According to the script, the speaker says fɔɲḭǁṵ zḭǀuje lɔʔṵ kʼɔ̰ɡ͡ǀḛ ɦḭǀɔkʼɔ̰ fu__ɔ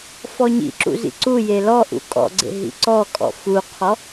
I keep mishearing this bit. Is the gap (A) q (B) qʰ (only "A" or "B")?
B